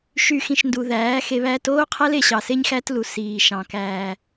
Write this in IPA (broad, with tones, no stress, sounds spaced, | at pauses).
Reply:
ʃ y˨ x ĩ˨ ʃ n d u˨ ð æː˨˦ x e˧ β æː˧ t oː˦ qʰ æ˦ l e˧ ɕ ɑ˨ s e˦ ɲ x æ˦ t l u˨ s iː˨ ʃ ɑ̃˨ k æː˨